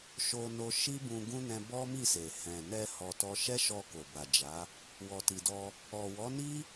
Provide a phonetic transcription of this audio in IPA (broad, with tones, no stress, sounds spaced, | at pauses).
ʃ o˧ n o˧ ʃ i˦ b ũ˧ ɡ ũ˦ n ɛ̃˧ b ɔ˦ m i˦˨ s e˨ h ɛ̃˨ n ɛ˧ h ɔ˧ t ɔ˦ ʃ ɛ˦ ʃ ɔ˧ k o˨ b a˨ d͡ʒ a˨˦ | w ɔ˨ t i˨ d ɔ˧ | ɔ˨ w ɔ˨˦ n i˦